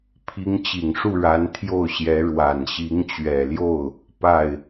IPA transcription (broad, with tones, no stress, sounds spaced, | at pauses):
pʰ i˧˥ ŋ t͡ɕ i˨˩ ŋ ʂ u˥˩ ɻ a˧˥ n t̪ʰ j o˥˩ ʊ̯ ɕ j ɛ˧˥ ɻ w a˨˩ n ɕ i˧˥ ŋ t͡ɕ ɥ ɛ˨˩ l j o˥˩ ʊ̯ | p a˥˩ ɪ̯